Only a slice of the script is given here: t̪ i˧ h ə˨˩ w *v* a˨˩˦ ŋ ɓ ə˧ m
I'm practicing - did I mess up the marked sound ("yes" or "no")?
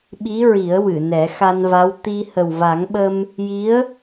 no